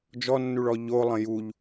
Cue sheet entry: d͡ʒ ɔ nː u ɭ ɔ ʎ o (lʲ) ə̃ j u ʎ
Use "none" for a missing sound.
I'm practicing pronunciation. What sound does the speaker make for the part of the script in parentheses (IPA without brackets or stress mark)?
lˠ